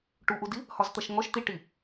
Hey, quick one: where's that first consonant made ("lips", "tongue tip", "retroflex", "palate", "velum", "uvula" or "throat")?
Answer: retroflex